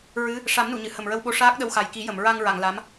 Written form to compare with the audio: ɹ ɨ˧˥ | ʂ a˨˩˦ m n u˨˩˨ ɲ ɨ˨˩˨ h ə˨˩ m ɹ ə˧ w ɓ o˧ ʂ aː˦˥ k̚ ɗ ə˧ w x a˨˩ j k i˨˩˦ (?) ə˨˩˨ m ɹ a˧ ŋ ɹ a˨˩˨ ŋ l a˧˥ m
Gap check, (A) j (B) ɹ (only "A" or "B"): A